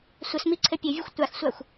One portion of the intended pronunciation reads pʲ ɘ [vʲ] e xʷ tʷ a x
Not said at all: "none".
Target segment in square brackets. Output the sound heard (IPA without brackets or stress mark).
vʲ